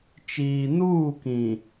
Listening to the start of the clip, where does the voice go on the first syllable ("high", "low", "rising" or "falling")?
low